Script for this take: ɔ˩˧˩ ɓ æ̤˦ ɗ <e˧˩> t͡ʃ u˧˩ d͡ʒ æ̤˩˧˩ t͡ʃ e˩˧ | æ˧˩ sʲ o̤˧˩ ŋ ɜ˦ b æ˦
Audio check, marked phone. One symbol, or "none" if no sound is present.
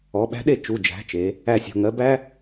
e˧˩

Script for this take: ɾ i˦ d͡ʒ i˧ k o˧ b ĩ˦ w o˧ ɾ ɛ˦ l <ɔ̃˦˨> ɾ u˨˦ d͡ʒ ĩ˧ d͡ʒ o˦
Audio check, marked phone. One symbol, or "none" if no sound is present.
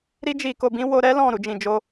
ɔ̃˦˨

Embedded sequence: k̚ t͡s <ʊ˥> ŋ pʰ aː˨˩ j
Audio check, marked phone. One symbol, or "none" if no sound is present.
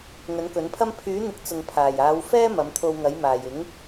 ʊ˨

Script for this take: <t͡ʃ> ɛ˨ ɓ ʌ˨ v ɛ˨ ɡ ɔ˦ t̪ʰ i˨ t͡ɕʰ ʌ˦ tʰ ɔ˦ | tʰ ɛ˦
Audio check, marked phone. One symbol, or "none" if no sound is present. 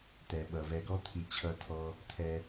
t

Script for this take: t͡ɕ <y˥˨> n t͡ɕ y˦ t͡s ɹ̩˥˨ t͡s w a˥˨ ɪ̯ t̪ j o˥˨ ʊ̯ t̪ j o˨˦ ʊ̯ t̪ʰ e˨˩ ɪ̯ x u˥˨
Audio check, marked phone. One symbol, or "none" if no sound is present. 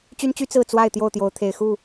y˦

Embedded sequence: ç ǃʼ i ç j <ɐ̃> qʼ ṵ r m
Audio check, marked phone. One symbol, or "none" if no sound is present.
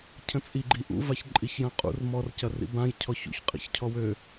ɐ̃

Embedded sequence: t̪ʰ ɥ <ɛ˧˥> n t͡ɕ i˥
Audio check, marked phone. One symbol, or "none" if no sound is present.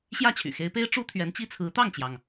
ɛ˧˥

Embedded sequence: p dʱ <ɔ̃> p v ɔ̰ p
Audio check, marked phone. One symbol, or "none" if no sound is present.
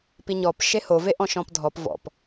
ɔ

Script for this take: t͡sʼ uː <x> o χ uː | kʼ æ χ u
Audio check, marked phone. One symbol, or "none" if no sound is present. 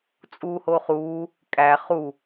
h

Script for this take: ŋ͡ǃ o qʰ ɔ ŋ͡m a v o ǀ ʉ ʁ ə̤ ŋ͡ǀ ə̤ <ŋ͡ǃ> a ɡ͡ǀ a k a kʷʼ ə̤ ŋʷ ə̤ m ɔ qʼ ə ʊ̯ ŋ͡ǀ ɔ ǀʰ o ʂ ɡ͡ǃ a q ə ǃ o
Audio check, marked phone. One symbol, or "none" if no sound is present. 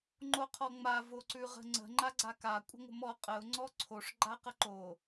ŋ͡ǃ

